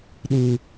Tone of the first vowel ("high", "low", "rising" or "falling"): high